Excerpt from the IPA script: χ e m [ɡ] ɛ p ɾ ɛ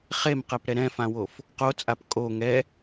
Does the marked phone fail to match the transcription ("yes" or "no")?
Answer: yes